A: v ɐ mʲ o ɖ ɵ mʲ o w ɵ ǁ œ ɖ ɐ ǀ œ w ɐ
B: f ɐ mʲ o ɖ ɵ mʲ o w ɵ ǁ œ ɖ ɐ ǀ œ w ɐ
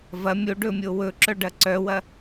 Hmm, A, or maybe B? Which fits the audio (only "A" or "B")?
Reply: A